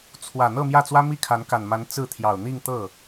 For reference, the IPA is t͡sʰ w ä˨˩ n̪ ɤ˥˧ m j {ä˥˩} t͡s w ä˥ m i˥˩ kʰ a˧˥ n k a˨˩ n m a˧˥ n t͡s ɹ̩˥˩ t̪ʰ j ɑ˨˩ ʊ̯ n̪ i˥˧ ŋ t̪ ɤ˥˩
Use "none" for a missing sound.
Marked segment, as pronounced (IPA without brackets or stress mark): ä˥˩